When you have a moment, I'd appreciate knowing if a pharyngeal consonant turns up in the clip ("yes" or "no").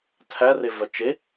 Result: no